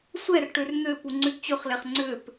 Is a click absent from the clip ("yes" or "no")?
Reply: no